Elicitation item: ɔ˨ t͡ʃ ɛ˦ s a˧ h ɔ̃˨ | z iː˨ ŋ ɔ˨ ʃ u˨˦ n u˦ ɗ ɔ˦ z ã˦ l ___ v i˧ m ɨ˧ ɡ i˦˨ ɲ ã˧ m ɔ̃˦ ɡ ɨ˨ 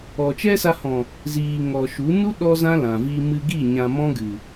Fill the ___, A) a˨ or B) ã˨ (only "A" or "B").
B